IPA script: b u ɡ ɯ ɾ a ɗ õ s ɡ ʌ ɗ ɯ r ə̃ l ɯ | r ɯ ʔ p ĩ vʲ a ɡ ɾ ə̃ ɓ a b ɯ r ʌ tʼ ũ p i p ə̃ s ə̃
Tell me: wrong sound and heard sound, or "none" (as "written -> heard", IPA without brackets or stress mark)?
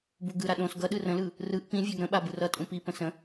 none